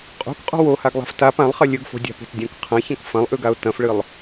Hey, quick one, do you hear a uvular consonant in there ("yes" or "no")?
yes